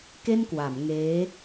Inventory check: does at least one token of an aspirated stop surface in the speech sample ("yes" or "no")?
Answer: no